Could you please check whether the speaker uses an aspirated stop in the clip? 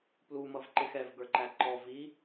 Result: no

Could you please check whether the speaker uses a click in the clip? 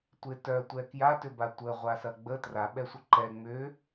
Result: yes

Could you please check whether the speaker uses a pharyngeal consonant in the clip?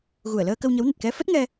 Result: no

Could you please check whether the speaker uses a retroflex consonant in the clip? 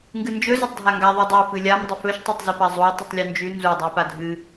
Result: no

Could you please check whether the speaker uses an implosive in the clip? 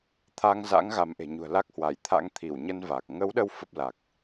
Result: yes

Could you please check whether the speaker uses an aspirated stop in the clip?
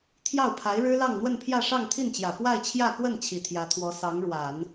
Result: yes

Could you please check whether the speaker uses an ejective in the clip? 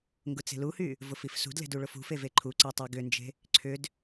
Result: no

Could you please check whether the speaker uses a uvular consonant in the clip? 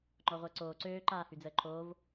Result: yes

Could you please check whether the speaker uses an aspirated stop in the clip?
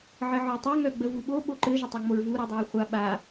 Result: no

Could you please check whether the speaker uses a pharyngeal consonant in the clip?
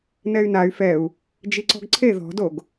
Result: no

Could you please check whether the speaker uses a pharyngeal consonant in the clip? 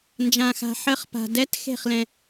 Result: yes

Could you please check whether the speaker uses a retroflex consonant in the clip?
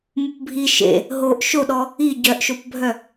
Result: no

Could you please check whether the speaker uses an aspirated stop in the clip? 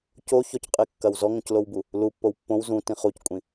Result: no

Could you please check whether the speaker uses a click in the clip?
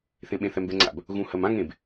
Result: yes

